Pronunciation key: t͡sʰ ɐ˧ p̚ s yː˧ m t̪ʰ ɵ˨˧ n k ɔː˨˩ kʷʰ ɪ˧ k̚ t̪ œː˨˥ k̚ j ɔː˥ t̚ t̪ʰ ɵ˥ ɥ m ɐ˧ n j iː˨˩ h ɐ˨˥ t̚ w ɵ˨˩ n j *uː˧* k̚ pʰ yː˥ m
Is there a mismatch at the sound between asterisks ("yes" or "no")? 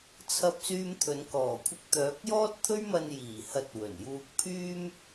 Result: no